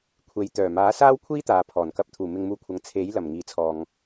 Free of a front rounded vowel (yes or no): no